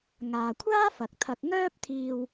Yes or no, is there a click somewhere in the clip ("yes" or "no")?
no